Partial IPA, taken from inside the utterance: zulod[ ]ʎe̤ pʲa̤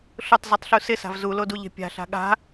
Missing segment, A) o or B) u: B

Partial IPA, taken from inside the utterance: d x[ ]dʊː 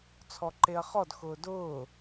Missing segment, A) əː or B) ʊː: B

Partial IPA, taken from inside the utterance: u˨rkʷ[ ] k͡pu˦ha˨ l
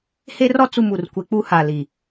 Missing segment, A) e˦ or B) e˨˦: A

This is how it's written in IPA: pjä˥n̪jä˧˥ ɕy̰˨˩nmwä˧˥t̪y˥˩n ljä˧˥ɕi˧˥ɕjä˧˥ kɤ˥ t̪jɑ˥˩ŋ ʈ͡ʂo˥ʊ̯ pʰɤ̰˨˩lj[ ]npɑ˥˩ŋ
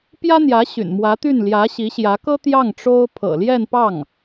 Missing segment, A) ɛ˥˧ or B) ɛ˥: A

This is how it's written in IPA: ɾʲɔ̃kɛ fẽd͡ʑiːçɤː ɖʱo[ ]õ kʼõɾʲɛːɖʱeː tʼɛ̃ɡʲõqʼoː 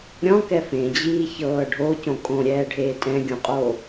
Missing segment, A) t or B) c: B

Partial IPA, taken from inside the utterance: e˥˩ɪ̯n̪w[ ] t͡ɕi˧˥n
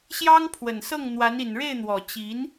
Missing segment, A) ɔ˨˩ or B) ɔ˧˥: A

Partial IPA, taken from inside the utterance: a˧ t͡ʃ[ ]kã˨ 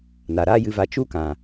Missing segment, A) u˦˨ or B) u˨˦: A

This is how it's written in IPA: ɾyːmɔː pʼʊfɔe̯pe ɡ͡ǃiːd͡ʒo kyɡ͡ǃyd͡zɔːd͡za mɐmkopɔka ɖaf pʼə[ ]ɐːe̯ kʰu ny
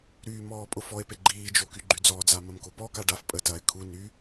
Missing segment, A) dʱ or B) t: B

